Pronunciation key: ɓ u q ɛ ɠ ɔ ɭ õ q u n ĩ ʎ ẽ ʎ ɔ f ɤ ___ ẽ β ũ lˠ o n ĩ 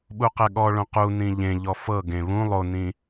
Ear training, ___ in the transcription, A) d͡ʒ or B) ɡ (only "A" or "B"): B